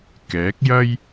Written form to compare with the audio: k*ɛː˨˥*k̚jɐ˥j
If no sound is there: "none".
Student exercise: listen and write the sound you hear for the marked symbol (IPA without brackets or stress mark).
ɛː˨˥